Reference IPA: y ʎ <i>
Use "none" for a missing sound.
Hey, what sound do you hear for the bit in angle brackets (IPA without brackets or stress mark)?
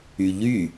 y